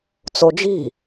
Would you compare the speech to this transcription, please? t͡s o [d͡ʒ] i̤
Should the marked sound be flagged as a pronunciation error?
no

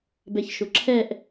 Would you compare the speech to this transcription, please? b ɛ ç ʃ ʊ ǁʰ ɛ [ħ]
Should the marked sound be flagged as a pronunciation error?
yes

